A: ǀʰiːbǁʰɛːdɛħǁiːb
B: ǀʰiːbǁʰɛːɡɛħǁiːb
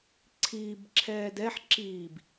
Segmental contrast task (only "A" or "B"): A